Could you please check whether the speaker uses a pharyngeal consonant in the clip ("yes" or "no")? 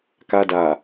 no